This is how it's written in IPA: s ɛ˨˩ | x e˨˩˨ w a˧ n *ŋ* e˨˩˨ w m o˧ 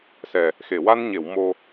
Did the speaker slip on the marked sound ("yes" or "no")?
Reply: yes